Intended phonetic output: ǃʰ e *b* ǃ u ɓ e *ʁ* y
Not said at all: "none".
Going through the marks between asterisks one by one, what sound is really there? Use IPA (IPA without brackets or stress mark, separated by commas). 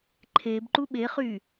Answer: b, χ